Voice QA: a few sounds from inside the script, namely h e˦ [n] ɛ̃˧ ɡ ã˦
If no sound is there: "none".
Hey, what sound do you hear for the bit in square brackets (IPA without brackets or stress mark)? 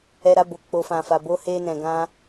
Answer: n